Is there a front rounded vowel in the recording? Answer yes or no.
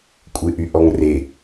yes